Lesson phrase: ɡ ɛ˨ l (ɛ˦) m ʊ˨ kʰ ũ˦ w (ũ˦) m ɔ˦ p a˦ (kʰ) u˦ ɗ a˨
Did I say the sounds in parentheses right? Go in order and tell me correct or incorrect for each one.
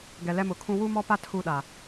correct, incorrect, incorrect

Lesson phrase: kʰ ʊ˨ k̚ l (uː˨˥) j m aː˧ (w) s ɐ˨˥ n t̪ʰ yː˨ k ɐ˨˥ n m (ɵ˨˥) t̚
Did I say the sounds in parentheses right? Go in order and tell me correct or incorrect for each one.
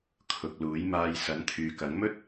correct, incorrect, incorrect

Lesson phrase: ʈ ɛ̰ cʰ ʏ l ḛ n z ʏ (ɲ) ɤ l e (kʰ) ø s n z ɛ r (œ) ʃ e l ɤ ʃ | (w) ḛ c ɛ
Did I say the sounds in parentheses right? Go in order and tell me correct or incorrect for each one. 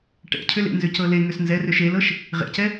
incorrect, incorrect, incorrect, incorrect

